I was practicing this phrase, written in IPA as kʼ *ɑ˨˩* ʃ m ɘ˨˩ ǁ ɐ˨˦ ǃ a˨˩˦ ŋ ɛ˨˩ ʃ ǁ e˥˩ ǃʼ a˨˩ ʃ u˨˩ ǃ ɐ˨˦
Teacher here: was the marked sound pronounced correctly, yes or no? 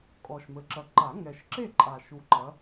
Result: no